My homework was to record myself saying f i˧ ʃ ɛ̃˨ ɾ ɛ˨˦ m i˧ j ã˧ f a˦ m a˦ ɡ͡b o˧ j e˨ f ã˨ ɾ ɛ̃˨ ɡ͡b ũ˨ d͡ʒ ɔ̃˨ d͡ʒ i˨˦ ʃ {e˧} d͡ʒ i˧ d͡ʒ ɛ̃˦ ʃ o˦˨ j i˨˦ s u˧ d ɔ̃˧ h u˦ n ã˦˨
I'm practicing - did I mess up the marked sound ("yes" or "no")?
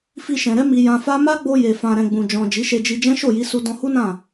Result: no